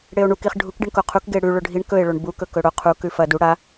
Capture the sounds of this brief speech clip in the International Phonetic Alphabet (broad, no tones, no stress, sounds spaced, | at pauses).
ɽ e o̯ ɳ u k i χ ɖʱ u k ɖ i ɳ k o qʰ u k ɡ e ɽ ʉ ɭ ɵ ɖʱ i ɳ k ɵ e̯ ɭ o ɳ b u k ɵ k ɵ ɽ o qʰ u k ʉ f ɐ d u ɽ a